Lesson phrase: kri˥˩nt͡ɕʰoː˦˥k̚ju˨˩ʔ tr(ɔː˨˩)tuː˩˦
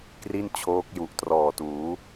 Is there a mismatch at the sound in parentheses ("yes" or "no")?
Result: no